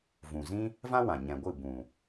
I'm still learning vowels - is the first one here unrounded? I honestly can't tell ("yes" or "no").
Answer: no